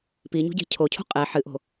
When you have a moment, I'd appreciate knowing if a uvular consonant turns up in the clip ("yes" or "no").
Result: yes